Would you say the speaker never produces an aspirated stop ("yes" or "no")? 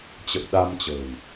yes